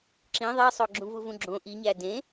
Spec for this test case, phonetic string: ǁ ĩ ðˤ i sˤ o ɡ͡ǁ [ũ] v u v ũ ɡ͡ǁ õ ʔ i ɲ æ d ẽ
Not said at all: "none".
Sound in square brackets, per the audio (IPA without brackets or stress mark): ũ